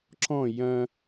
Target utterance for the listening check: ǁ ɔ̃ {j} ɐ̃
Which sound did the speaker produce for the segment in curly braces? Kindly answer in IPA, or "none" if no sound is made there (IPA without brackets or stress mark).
j